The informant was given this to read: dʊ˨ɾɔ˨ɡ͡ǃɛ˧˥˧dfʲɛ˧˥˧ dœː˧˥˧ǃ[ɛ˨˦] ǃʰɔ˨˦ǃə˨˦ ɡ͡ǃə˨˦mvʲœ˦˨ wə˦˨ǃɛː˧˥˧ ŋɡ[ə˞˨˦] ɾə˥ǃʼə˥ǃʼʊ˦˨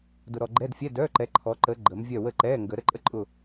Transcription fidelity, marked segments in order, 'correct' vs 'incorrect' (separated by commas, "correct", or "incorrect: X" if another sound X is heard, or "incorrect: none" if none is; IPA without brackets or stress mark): correct, incorrect: ə˨˦